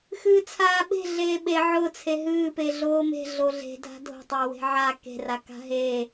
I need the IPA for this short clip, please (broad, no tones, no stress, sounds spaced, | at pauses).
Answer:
x ɨː t͡sʰ aː ɓ e̤ ɮ eː ɓ e ʕ ʊ t͡sʰ e ɦ ɨː p e ɮ oː m e̤ ɮ o ɮ e̤ dʱ a̤ dʱ o̤ tˤ ʊː w e̤ ʕ a k e̤ r a k a̤ ɦ e